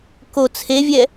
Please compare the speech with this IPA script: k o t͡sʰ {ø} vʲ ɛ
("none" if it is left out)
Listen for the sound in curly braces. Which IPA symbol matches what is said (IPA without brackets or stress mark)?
e